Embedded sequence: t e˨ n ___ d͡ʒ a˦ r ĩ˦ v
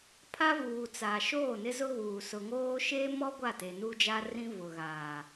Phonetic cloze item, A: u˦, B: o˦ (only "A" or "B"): A